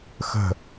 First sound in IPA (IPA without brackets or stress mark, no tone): x